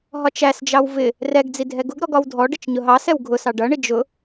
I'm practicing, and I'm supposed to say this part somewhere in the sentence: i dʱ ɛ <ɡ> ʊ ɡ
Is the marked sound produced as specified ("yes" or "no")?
yes